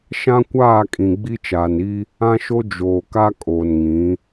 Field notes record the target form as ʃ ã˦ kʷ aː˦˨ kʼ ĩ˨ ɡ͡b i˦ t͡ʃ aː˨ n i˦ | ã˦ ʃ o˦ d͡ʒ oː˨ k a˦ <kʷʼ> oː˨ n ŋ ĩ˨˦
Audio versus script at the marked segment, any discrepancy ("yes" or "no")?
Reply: yes